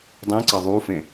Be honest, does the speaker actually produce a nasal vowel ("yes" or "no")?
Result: yes